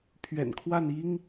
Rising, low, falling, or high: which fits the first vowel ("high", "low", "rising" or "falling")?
low